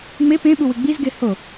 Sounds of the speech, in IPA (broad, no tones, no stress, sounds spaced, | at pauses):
ŋ͡m e p ẽ ɓ u w ɨ ɡ͡b i z ɡ e h o